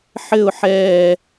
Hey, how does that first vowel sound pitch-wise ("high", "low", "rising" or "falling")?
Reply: falling